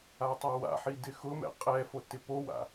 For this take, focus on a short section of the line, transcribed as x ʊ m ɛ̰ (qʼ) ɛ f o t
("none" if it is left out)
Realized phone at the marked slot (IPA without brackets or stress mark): qʼ